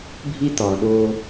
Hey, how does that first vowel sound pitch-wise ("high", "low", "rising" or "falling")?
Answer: high